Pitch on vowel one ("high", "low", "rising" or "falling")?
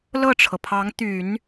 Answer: falling